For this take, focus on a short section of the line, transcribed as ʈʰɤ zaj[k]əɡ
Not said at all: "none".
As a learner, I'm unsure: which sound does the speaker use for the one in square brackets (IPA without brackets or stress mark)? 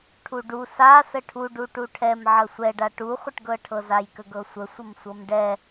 k